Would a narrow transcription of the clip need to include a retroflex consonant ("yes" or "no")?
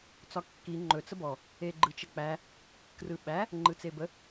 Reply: no